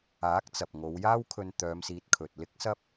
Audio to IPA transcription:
aː˨˥ k̚ t͡s ɐ˨ p̚ ŋ o˨˧ w j aː˥ w kʰ ɵ˧ n t̪ œː˨˧ m s iː˨˥ t̚ kʰ ɵ˨ t̚ l ɪ˥ k̚ s ɐ˥ p̚

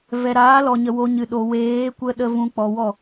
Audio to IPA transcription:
v ɛ˨ ɾ aː˨˦ l ɔ˨ ɲ ə˨ w o˧ ɲ ɨ˨ ɗ o˨ w eː˨˦ kʷ ə˦ ɗ ə˧ v ũ˧ k͡p ɔ˨ w ɔ˦˨

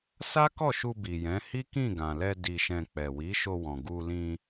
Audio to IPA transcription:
s a˦ k ɔ˦˨ ʃ u˧ b i˨ j ɛ̃˨˦ h i˦ k ĩ˦˨ ɡ ã˨ l ɛ˧ d i˧ ʃ ɛ̃˧ k͡p ɛ˨ w i˨˦ ʃ o˧ w ɔ̃˨ ɡ u˧ l ĩ˧

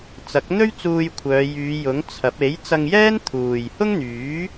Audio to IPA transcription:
t͡s ɐ˨˥ k̚ n̪ ɵ˥ ɥ t͡s uː˧ j kʷʰ œː˨˧ j yː˨˧ j ʊ˨˥ ŋ t͡sʰ ɐ˨˥ p̚ e˨˥ j t͡s ɐ˧ ŋ j ɛː˥ n t̪ʰ uː˨ j h ʊ˥ ŋ n̪ yː˨˥

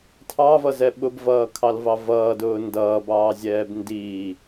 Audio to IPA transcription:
tʰ ɑ v ʌ z ɛ ɓ ʊ b v ʌː kʰ ɑ l v ɑ v ʌː d ʊː n d ʌː b ɑː zʲ ɛː b n d iː

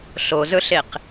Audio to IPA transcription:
ɬ o z ɵ ɬ e q

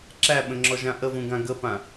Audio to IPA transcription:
ǁ æ ɓ ə̃ ŋ͡ǁ ɔ ʒ ã ʔ ə v ũ ɡ ã ɡ ə p ã

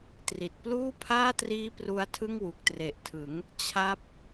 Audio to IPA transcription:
t r i˨˩ t̚ p l uː˥˩ pʰ aː˥˩ t r iː˦˥ p r u˦˥ a̯ tʰ ɯ˥˩ ŋ w u˨˩ k̚ t r e˨˩ ʔ tʰ ɯ˩˦ ŋ | t͡ɕʰ a˦˥ p̚

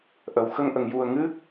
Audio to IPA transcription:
ʔ ə˨˩˨ w x ə˧ ŋ ʔ ə˨˩˨ ŋ j u˨˩ ə̯ ŋ ɨ˦˥ k̚

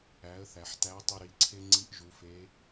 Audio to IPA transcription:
æ˩˧ ə̯ θ æ˩ ħ t æ˧˥ ə̯ tˤ i˧ ɾ i˩˧ ǀʰ e˥ ŋ͡ǀ i˧˥ ʔ ʒ u˩˧ f e˧˥

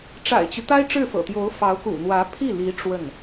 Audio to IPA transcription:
ʈ͡ʂ a̰˨˩ ɪ̯ t͡ɕ y˦ t̪ a˥ ɪ̯ ʈ͡ʂ ɻ̩˥˩ f ɤ̰˨˩ t̪ j o˧˥ ʊ̯ f ɑ˧˥ ʊ̯ k ṵ˨˩ n̪ w ä˧˥ pʰ i˥˩ l i˧˥ ʈ͡ʂ w ə˥˩ n

